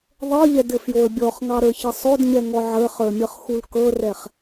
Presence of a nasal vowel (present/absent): absent